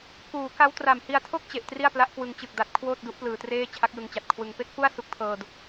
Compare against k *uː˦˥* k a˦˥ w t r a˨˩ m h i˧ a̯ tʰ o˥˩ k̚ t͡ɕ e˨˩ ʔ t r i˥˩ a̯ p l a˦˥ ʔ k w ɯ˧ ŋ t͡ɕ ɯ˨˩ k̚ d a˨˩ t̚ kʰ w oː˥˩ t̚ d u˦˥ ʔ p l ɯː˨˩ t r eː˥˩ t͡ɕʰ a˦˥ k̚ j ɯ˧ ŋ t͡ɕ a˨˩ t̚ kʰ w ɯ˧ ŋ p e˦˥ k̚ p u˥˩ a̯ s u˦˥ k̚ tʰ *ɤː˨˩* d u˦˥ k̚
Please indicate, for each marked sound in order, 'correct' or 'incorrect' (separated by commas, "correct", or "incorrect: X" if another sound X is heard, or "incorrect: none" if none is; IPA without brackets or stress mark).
incorrect: uː˩˦, incorrect: ɤː˧